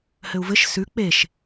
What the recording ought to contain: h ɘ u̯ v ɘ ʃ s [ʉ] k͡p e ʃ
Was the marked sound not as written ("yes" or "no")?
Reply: no